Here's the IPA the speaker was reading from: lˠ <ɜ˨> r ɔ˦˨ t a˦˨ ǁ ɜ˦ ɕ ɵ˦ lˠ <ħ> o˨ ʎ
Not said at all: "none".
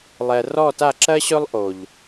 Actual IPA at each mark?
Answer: ɛ˨, ʔ

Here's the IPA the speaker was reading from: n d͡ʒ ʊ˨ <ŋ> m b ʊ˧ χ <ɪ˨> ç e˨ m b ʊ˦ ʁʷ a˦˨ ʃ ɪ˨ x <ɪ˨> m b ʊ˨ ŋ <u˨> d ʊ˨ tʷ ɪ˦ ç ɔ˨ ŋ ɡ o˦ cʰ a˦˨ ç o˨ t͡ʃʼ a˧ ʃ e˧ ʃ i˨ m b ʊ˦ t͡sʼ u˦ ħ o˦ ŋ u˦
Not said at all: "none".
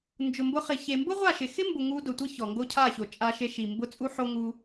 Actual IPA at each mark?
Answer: none, ɪ˨, ɪ˦, u˧

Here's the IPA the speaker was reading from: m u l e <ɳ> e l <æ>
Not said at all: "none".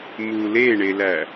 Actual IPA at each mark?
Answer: ɳ, æ

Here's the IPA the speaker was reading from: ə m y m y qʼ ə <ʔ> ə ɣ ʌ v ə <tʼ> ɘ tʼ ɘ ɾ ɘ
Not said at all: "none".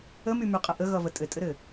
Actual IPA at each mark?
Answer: ʔ, tʼ

